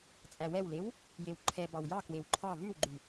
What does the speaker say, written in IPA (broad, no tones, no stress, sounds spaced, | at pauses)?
t͡sʼ æ w ɛ w l e w | j e w ǃʰ ɛ b ɑ w j ɑ k w e w ǃʰ ɑ v ʉ w ɡ͡ǃ ʉ